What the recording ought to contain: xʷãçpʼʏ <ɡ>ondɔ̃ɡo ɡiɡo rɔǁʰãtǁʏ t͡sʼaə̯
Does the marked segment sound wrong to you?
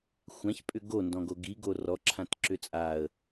no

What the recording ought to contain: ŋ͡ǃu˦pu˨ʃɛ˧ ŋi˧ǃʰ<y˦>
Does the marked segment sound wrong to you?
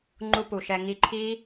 yes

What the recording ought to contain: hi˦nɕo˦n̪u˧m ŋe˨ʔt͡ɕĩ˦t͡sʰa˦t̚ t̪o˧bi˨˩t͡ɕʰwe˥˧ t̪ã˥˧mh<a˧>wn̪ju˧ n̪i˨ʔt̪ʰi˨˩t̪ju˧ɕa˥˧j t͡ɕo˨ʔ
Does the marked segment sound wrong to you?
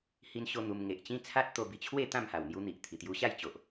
yes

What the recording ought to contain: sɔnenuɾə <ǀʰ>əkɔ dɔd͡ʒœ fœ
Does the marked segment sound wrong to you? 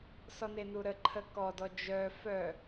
yes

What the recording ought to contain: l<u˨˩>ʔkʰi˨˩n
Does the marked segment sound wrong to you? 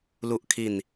no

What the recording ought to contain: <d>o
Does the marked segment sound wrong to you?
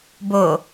yes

